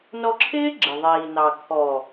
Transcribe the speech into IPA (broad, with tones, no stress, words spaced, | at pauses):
nɔ˧ǁʰɪː˦ ɡ͡ǁɪ˨ðˤiː˨nɑ˨ kʰɔ˨